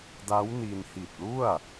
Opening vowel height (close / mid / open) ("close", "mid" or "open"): open